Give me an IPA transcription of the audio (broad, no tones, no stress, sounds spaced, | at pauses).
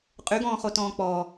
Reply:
qʼ y ɡ ɔ̃ː χ o t ɔ̃ː k͡p ɔ